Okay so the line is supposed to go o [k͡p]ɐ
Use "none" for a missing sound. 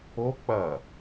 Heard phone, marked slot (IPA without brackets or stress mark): k͡p